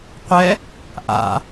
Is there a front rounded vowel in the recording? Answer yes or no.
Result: no